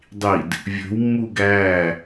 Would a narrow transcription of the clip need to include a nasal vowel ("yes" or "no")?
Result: no